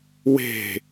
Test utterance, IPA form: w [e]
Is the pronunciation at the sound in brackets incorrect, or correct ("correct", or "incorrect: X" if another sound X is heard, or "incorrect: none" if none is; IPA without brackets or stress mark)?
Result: incorrect: e̤